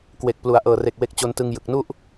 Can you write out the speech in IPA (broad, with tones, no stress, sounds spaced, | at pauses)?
k w e˨˩ k̚ p l u˩˦ a̯ ʔ ɤː˨˩ r e˨˩ k̚ w e˦˥ k̚ t͡ɕ o˧ n t ɯ˧ ŋ j ɯ˨˩ k̚ n u˥˩ ʔ